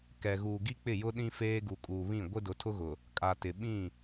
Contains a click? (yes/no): no